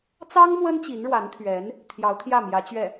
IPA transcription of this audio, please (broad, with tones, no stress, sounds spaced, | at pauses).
t͡s ɑ˥ ŋ m w ə˥ n t͡ɕ i˧˥ n ɻ w a˧˥ n t̪ʰ ɥ ɛ˧˥ n | t̪ʰ j ɑ˧˥ ʊ̯ t̪ʰ j ä˥˩ m j ä˧˥ t͡ɕ ɥ ɛ˥˩